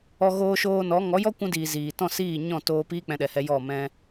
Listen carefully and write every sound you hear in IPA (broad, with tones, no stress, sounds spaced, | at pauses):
ɔ˧ ɣ oː˧ ʃ oː˧ n ɔ˨˦ ŋ ɔ˨˦ j ɔ˦ kʷ ũ˧ d iː˨ z iː˨ t ɔ̃˦˨ s iː˦˨ ɲ ɔ̃˦˨ t oː˧ p iː˦ k͡p ɛ̃˧ ɗ ɛ˨ h ɛ˧ j ɔ˦˨ m ɛ̃˧